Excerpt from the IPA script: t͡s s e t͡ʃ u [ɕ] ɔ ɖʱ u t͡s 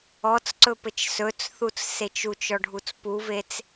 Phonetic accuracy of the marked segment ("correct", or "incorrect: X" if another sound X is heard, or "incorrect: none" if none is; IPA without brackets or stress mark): incorrect: t͡ʃ